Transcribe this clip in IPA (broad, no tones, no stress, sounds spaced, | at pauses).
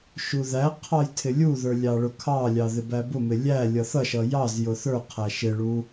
ʃ u ð æ qʰ ɑ j tʰ ɪ lʲ u ð ə˞ lʲ ɑ ɭ ʊ kʰ ɑ lʲ ɑ ð ɪ b æ b ʊ m ɪ lʲ æ lʲ ʌ θ ʌ ʃ ʌ j ɑ z j ʊ θ ə˞ qʰ æ ʃ ɪ ɭ u